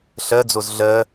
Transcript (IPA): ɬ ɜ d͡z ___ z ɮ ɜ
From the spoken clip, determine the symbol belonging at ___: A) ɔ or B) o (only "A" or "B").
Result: B